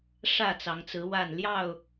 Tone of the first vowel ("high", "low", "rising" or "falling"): falling